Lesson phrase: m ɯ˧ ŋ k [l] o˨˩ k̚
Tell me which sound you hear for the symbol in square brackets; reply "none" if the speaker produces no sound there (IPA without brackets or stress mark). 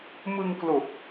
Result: l